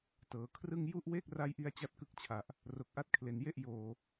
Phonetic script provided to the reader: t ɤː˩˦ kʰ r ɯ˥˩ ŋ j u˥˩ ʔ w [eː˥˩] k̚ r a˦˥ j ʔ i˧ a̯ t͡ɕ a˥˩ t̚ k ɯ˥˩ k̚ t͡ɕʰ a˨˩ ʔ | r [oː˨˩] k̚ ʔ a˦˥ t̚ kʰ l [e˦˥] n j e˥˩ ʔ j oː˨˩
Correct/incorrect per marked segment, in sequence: correct, incorrect: o˨˩, incorrect: e˨˩

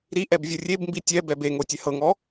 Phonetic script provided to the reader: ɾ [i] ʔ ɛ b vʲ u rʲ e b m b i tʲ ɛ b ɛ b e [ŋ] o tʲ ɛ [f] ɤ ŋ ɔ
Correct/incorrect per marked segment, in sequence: correct, correct, incorrect: h

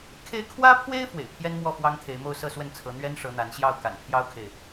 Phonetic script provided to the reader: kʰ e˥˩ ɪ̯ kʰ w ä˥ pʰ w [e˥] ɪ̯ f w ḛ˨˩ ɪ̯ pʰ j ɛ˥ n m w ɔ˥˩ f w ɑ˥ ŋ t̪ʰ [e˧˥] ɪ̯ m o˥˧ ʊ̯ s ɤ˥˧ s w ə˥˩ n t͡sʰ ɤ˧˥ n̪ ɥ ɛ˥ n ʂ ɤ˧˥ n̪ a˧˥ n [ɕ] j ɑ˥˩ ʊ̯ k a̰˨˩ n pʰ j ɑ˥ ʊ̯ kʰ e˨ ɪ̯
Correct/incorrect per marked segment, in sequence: correct, correct, correct

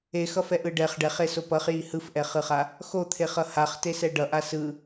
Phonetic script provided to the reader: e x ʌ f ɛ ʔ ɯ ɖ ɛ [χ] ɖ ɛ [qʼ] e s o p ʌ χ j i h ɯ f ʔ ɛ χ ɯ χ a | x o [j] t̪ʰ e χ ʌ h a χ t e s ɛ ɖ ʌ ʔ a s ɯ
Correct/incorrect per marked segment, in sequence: correct, incorrect: χ, incorrect: none

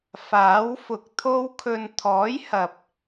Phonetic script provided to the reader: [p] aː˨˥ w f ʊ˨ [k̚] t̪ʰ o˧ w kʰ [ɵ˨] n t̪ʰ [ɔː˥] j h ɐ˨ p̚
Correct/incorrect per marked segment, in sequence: incorrect: f, correct, correct, incorrect: ɔː˨˥

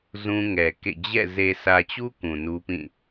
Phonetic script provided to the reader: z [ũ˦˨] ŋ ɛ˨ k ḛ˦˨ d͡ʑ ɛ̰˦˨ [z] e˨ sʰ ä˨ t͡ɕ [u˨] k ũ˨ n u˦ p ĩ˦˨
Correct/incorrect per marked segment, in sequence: incorrect: ũ˦, correct, incorrect: u˦

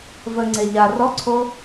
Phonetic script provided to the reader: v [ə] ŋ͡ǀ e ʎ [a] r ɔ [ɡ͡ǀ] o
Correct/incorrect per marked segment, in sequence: correct, correct, incorrect: ǀʰ

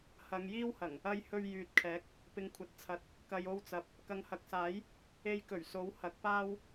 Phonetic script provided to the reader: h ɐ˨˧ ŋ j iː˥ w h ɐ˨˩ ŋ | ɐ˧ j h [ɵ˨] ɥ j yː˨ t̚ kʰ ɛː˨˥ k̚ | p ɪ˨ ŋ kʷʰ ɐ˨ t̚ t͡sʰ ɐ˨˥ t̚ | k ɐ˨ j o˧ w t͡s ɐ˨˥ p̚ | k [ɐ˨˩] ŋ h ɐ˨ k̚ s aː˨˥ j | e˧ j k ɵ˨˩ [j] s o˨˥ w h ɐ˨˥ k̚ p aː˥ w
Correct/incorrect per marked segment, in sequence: incorrect: ɵ˧, incorrect: ɐ˨, incorrect: ɥ

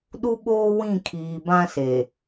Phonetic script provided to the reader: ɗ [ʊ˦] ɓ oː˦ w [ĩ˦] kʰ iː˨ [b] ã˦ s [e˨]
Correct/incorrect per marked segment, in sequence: incorrect: u˦, incorrect: ĩ˦˨, correct, correct

